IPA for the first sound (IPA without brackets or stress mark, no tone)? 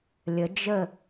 lʲ